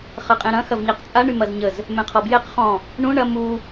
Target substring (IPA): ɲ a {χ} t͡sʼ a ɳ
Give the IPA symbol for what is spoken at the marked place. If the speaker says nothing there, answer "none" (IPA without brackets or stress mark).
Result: q